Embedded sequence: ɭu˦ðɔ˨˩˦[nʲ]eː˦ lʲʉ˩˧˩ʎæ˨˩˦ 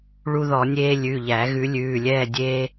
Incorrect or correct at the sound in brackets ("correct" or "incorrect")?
correct